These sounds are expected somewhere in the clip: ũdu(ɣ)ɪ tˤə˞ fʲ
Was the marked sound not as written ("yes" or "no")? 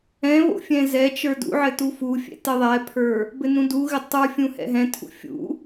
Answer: no